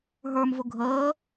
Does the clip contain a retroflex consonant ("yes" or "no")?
no